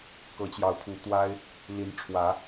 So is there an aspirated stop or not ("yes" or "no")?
yes